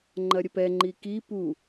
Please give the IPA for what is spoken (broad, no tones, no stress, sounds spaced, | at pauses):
ŋ͡ǃ ɐ ɾʲ ə p ɛ ŋ͡ǃ i k i p u